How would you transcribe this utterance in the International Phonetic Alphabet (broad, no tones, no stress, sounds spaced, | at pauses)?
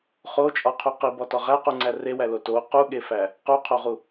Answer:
χ o t͡ʃʼ ɒ qʰ u q i b ɒ t ɒ ʁ æ q u ŋ͡ǀ æ r e w æ l o t o q u ɠ e f æ | q u qʰ o ʁ u